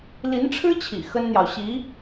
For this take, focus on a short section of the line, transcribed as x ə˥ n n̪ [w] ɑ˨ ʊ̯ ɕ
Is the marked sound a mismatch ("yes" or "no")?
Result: yes